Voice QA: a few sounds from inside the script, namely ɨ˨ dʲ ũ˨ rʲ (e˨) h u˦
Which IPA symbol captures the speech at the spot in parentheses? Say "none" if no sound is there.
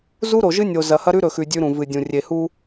e˨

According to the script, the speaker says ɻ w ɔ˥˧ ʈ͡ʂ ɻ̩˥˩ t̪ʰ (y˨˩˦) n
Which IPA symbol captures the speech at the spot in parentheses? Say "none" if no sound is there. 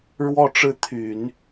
y˨˩˦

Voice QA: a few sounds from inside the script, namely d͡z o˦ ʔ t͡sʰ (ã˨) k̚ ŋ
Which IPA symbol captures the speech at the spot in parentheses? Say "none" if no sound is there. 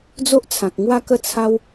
ã˨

